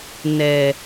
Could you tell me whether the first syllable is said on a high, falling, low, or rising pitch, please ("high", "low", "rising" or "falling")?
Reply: low